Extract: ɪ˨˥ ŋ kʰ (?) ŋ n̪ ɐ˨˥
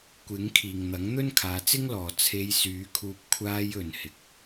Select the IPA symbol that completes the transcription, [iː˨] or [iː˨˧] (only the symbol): iː˨